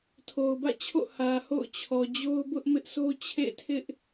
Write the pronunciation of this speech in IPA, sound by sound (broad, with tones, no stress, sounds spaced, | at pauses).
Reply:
tʰ o˨ ʊ̯ b ä̰˦˨ t͡ɕʰ o̰˦˨ h ä˨ h o̰˦˨ ʊ̯ t͡ɕʰ ɔ˨ d͡ʑ o˦ ʊ̯ b ʊ˦ ʔ m ɪ˦ ʔ sʰ o˦ t͡ɕʰ ḛ˦˨ tʰ ɪ˦ ʔ